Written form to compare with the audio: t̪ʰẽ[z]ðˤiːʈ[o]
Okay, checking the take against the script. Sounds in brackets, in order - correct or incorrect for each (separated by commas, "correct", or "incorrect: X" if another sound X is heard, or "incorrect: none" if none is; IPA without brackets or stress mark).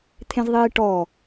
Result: correct, incorrect: ɔ